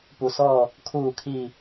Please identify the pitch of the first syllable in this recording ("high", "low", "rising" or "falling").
low